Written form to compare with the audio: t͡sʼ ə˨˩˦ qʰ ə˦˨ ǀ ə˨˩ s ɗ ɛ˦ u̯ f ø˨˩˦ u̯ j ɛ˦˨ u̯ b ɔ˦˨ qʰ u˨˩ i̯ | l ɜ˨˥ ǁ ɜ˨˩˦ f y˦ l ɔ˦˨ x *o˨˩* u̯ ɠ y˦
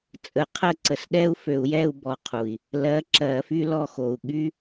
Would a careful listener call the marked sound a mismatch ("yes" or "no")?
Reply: no